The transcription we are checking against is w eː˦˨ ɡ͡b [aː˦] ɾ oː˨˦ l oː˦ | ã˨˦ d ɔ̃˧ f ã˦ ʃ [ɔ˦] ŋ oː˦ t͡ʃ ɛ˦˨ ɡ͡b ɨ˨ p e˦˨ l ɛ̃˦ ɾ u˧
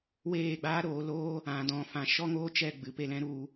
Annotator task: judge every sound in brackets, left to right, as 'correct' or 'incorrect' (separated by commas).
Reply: correct, correct